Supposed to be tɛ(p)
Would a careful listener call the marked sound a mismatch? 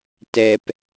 no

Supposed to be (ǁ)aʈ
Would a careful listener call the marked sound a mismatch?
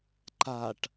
yes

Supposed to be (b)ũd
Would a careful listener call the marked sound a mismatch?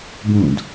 no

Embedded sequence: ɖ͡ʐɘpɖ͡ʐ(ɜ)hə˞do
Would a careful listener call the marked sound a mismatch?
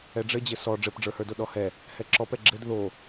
yes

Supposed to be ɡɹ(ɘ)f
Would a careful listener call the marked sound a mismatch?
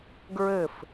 no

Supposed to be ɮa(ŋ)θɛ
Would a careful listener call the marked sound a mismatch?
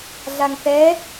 no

